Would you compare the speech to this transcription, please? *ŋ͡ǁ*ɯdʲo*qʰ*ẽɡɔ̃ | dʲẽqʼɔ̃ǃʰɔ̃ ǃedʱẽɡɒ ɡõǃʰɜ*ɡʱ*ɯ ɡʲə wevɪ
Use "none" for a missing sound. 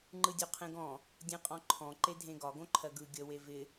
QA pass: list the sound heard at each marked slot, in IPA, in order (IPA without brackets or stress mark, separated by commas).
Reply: ŋ͡ǃ, qʰ, ɡ